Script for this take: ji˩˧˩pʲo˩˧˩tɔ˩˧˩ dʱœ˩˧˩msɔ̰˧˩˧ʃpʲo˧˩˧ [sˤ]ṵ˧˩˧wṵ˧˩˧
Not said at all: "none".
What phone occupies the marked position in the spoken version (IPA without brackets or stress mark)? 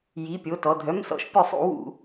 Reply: sˤ